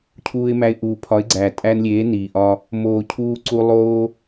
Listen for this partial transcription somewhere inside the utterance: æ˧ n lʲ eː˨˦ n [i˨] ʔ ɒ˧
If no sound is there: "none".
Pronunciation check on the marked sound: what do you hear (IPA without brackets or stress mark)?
iː˨